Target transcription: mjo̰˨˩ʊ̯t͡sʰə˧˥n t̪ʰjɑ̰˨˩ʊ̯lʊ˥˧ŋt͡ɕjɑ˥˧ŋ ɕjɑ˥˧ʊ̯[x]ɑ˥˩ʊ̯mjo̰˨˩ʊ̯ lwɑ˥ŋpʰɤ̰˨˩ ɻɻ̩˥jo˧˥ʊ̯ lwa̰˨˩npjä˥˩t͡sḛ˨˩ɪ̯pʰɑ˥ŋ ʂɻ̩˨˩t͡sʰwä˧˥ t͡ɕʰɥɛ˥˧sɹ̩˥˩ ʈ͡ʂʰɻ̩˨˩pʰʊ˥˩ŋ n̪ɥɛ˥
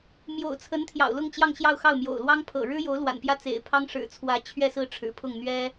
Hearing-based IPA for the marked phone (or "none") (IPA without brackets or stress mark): x